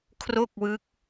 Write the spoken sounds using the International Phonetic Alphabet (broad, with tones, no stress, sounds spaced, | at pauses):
kʰ r o˥˩ k̚ w ɯ˦˥ k̚